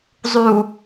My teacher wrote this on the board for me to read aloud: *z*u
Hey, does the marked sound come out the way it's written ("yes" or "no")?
no